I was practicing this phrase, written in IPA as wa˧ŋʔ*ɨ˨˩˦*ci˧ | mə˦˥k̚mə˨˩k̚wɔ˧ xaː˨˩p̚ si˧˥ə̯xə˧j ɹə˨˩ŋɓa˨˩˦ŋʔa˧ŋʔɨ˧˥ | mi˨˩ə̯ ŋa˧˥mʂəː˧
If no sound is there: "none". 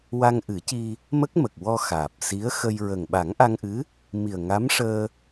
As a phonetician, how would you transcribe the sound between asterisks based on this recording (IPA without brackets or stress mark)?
ɨ˨˩˦